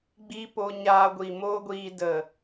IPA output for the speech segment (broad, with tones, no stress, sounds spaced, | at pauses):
ɡ͡b i˦ p o˧ ɲ aː˧ ɡʷ i˨ m oː˦ ɡʷ iː˧ d ə˨